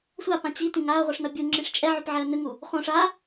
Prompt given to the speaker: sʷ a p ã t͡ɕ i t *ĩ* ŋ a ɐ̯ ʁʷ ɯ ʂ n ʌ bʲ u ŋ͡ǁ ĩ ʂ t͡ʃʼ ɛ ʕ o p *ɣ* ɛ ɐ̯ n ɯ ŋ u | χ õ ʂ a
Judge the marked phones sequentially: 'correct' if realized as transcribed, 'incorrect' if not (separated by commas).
correct, incorrect